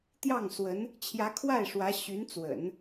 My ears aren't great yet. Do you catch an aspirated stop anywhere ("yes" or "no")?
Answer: yes